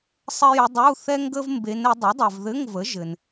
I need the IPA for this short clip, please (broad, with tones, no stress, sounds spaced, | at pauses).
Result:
sˤ ɘ˥ j ə˧˥ dˤ u˧˥˧ θ ɛ˥ ŋ ɡ ə˥ v m b e˧˥ n ɘ˩˥ dˤ ɛ˩˥ dˤ ɛ˨ v ð ɘ˧˥˧ ŋ v ə˩˥ ʒ ɘ˨ n